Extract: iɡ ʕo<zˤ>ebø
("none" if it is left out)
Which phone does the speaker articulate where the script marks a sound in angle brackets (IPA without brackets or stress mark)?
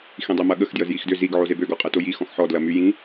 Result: z